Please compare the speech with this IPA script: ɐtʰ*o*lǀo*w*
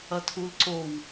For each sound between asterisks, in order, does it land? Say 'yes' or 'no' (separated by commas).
no, yes